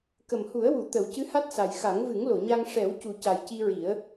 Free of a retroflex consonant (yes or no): no